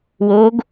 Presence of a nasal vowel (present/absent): absent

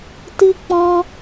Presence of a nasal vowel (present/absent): present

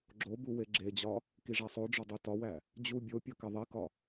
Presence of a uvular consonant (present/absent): absent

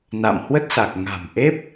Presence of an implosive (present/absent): absent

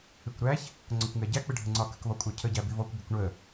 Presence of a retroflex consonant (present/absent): present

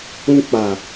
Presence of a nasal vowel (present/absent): present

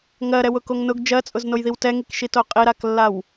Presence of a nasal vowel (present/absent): absent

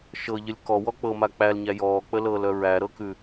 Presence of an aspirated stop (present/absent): absent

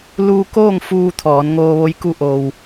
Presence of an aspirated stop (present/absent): present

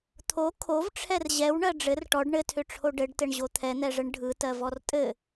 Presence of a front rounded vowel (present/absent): present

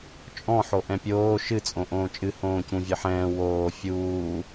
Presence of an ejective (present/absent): present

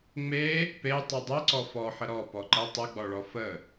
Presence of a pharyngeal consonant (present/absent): present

